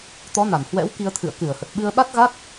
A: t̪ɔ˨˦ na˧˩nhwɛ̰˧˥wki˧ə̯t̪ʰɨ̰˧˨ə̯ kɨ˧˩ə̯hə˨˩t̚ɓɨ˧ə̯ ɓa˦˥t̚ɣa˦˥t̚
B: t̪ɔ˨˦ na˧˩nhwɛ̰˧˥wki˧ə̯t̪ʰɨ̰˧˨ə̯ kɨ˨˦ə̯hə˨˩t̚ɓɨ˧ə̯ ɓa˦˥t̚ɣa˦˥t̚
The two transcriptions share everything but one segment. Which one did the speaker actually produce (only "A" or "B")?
A